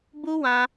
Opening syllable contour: high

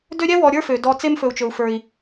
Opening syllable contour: high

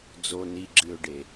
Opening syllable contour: low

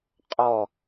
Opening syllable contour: falling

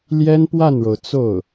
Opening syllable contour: high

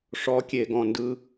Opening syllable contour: rising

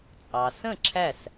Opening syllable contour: low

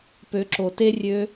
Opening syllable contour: rising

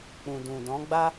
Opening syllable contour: low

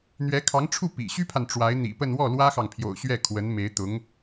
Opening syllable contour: rising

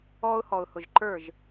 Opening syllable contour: high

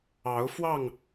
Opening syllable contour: rising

